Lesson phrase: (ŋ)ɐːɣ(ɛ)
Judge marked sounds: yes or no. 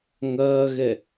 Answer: yes, yes

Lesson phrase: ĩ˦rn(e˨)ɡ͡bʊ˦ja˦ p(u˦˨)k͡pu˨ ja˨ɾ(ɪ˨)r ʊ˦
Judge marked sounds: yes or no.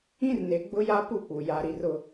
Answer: yes, yes, no

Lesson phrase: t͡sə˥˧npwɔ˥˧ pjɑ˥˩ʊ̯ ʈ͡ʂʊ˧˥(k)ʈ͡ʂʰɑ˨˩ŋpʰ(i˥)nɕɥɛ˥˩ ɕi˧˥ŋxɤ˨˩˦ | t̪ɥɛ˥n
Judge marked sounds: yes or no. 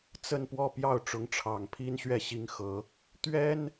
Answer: no, yes

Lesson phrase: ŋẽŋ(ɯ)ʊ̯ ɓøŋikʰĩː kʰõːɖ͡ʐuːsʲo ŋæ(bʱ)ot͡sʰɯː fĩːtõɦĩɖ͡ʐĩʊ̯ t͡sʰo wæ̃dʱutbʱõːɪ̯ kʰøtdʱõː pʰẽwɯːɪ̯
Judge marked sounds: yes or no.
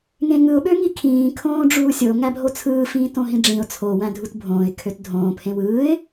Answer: yes, yes

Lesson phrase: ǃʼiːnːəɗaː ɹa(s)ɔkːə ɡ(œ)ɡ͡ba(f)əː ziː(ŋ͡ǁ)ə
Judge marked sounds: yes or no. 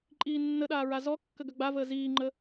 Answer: no, yes, no, no

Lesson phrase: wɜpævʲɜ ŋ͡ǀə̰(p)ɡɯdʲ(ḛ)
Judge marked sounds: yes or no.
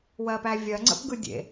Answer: yes, yes

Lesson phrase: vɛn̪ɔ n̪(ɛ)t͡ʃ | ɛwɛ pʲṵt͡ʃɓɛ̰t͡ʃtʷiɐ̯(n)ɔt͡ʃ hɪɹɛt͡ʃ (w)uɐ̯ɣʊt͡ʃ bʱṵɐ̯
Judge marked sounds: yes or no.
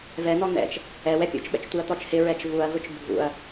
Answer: no, no, no

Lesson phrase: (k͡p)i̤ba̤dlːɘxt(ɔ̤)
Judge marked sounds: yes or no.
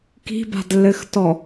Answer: no, no

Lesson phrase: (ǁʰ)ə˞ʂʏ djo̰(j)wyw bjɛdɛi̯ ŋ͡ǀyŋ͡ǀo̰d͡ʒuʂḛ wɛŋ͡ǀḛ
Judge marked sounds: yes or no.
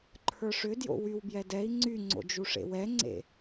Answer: no, no

